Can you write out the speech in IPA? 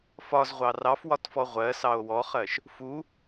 f ɒ z ʁʷ ɑ r ɑ f w ɒ t f ɔ ʁʷ ɜ s ɑ o̯ w ɔ χ ɜ ʃ | f u

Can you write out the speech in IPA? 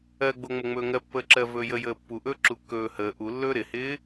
ɜ ɡ͡b o ŋ͡m ə ŋ͡m ɵː ŋ ɜ pː əː ǁ ɜ v ɵː j ə j əː pː u ʔ ɵː ǁ u kː ɵː h əː ʔ u lː ɵː ɾ ɪ h ɪː

